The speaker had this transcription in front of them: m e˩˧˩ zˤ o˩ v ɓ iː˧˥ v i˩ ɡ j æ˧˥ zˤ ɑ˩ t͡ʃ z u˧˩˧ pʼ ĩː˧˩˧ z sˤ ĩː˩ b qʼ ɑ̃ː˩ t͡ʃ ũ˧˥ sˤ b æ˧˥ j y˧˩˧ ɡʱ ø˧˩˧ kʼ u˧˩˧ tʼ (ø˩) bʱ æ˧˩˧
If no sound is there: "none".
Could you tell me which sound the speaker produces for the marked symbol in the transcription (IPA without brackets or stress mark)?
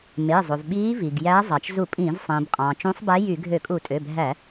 ø˩˧˩